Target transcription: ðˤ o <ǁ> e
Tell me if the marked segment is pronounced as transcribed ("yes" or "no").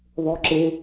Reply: yes